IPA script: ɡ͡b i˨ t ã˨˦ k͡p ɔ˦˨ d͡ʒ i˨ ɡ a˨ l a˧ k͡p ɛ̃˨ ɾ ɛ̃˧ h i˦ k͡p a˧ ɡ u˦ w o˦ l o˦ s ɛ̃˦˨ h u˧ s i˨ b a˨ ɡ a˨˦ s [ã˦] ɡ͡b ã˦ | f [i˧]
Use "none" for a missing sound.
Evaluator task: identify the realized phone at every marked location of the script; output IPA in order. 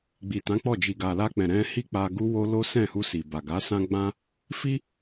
ã˦, i˧

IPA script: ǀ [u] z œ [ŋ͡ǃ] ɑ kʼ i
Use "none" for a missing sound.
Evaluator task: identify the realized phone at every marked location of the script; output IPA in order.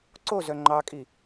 o, ŋ͡ǃ

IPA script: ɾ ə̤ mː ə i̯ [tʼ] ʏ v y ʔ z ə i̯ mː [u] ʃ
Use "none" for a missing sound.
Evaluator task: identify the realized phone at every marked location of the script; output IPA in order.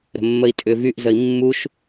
tʼ, u

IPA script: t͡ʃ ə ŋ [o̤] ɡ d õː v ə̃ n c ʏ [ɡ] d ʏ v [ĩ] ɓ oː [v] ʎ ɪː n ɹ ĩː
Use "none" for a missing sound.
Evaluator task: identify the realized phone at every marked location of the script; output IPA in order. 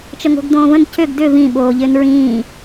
o̤, ɡ, ĩ, none

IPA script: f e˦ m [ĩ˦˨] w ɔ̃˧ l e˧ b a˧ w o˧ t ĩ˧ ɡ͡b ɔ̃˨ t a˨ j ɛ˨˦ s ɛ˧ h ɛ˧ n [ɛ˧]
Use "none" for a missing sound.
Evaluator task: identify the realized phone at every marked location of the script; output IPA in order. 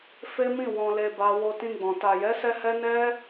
ĩ˦˨, ɛ˦

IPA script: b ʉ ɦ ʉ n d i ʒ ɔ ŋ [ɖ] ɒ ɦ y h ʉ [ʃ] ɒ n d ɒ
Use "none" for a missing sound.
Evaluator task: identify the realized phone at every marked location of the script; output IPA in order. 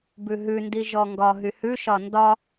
ɡ, ʃ

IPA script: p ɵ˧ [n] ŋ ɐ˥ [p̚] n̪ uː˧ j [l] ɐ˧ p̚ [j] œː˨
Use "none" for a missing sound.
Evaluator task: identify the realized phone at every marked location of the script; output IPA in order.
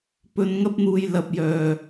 n, p̚, l, j

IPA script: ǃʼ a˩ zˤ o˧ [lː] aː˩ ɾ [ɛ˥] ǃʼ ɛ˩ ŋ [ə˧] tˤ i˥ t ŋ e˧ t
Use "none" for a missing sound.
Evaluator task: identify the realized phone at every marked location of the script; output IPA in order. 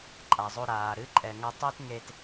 ɾ, ɨ˥, ɐ˧

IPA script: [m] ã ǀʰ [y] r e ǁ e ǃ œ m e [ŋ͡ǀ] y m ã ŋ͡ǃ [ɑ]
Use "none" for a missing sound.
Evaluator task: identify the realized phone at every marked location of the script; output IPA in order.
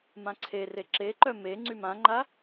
m, e, ŋ͡ǀ, a

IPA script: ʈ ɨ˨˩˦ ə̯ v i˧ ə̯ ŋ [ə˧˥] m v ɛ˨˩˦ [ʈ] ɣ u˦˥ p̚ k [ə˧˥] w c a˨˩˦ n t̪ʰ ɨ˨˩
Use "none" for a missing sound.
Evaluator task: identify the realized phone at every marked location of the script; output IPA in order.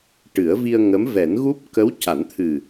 ə˧˥, n, ə˧˥

